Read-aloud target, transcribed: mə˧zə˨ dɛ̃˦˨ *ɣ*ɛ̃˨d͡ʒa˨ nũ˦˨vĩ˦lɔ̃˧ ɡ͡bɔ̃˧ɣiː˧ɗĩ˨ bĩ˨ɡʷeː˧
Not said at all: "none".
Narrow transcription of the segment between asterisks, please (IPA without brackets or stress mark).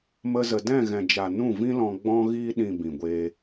ɣ